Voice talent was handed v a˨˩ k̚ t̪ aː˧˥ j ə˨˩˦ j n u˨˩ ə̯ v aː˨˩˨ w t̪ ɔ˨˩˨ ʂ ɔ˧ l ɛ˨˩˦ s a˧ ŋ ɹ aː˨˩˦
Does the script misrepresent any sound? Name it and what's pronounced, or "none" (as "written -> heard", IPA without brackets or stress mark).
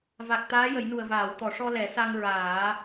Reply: none